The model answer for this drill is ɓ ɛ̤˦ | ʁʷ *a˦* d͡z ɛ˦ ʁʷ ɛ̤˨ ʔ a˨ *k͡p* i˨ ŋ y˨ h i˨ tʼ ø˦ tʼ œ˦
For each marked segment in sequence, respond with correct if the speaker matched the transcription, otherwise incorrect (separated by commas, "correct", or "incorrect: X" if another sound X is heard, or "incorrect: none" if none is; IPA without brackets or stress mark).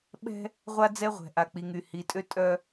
correct, correct